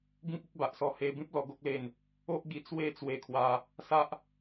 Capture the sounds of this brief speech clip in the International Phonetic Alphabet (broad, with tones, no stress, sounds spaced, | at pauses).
ɡ ĩ˦ k̚ i˦ k̚ b a˨ ʔ s ɔ˧ h e˧ b ĩ˦ p̚ l ɔ˧ ɡ o˦ k̚ l e˧ n | o˦ ʔ ɡ i˧ t͡s w e˦ t͡s w e˧ kʰ w a˧ | s a˦ ʔ